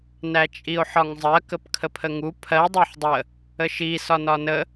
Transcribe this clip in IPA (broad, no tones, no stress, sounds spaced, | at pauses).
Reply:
n æ t͡ʃʼ i o̯ ħ ɒ ŋ zˤ ɜ k ə p kʰ ə pʰ ə ŋ u pʰ ɜ dˤ æ ħ dˤ ə | ə ʃ i s ɒ n ɒ n ə